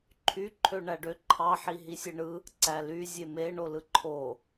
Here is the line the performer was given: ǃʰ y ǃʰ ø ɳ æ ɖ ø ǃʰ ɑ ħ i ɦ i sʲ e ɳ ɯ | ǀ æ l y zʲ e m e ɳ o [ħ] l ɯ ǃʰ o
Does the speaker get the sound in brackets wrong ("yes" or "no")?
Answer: yes